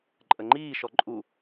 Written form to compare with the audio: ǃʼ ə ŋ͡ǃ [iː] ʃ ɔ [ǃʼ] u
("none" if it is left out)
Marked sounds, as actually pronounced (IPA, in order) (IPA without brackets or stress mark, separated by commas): iː, ǃʼ